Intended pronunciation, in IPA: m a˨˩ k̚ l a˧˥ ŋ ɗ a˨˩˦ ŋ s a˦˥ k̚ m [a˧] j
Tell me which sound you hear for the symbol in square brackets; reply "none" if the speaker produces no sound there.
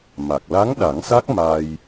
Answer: a˧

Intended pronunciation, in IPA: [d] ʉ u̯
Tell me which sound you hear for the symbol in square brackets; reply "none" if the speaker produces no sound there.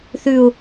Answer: θ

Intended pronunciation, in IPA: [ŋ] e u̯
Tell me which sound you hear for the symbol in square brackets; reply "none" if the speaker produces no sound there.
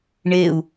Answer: ɳ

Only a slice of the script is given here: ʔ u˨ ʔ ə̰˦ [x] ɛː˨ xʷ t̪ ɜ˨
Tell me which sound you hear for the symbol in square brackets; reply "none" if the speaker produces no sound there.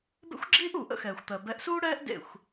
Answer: x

